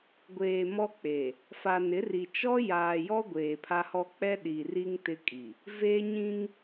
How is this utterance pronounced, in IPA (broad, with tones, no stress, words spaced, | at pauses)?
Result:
ɡʷeː˨ mɔ˦k͡pe˨ | fa˨nɪ˨˦ri˨ t͡ʃɔ˦ jaː˨jɔ˦ ɡʷeː˨pʰa˦hɔ˦ k͡pɛ˦ ɗi˨ri˦ŋ tɪ˦kʼi˨ | ve˦ɲĩ˦ŋ